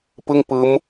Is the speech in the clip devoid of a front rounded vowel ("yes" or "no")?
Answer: yes